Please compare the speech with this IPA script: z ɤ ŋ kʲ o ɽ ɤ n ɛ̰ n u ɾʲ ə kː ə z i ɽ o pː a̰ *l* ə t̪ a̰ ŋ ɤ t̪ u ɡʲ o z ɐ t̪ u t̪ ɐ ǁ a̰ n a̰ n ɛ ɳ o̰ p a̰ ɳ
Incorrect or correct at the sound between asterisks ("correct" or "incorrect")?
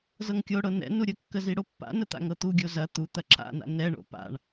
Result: incorrect